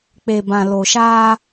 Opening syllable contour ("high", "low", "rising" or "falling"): low